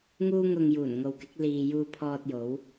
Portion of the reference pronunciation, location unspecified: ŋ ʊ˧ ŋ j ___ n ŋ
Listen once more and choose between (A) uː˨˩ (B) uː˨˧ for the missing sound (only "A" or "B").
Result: A